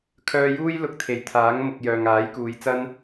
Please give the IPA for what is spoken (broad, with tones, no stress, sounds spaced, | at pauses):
kʰ œː˧ j uː˥ j l ʊ˧ k̚ t̪ʰ e˨ j t̪ʰ aː˨˥ ŋ m ʊ˨ k̚ j œː˨ ŋ aː˨˥ j k uː˨˧ j t͡s ɐ˥ n